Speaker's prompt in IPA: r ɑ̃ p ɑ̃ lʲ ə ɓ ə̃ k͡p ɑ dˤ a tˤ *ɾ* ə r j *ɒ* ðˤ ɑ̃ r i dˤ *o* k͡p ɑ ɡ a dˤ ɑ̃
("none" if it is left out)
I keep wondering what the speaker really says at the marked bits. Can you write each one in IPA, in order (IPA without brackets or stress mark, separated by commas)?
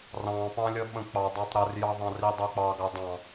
ɾ, ɑ, o